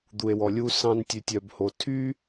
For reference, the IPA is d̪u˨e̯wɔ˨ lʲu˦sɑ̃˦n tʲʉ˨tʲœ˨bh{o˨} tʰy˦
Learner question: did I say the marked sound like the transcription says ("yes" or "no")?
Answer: yes